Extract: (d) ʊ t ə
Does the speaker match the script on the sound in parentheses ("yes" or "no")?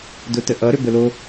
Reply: yes